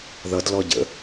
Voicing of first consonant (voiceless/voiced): voiced